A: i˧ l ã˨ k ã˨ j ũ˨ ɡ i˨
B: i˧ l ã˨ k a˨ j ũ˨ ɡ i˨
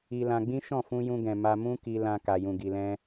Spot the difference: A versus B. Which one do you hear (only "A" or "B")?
B